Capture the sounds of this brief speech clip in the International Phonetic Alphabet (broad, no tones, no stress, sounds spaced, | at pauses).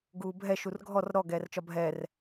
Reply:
ɡ uː bʱ ɛ ʃ u r ɡʱ ɔ r ɾ ɔ ɡ ɛː r t͡ʃ ɒ bʱ ɛː r